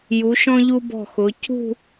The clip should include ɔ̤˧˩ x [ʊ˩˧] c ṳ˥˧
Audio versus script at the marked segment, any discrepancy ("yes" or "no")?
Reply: no